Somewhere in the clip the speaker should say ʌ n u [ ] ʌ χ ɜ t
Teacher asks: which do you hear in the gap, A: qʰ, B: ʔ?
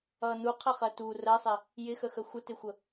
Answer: A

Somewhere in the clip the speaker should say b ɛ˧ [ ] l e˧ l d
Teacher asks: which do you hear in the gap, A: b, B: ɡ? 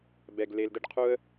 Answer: B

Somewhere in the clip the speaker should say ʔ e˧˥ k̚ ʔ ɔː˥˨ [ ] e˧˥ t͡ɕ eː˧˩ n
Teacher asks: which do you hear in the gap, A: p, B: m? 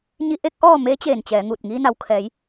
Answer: B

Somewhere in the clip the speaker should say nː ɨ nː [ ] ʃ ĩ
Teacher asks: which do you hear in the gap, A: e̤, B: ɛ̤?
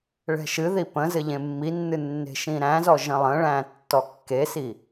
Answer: A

